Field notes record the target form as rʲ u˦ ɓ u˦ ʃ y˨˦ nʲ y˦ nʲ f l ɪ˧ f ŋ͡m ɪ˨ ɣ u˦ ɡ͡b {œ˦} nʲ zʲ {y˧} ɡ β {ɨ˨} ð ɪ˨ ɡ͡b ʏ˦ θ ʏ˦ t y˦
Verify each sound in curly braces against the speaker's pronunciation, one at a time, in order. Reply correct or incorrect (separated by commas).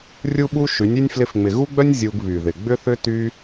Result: correct, incorrect, incorrect